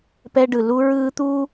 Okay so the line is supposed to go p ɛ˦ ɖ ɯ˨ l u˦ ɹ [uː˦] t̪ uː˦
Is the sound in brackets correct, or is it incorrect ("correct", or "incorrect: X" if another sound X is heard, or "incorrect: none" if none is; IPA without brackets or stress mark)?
incorrect: ɯː˦